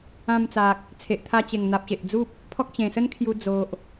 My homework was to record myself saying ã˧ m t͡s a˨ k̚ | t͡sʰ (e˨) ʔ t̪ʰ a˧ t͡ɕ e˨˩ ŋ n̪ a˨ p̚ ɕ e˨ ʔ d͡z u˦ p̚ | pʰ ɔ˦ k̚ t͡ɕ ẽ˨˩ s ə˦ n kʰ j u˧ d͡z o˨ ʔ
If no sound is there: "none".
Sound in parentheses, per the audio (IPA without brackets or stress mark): e˨